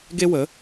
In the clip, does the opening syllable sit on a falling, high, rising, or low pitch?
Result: high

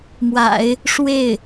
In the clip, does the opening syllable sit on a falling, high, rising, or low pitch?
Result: low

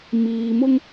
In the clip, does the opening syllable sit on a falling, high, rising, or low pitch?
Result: low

